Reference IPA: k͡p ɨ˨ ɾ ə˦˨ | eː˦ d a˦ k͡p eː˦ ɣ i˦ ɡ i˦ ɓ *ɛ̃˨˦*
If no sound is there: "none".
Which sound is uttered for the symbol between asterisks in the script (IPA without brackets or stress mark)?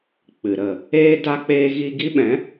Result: ɛ̃˨˦